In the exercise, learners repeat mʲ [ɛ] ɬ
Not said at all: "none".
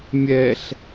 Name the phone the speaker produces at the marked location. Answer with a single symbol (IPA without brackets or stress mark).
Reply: ɛ